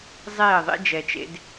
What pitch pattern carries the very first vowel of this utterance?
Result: falling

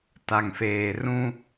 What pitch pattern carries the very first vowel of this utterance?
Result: low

